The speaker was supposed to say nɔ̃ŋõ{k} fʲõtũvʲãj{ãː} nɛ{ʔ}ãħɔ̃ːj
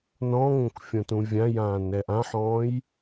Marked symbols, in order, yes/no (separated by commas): yes, yes, yes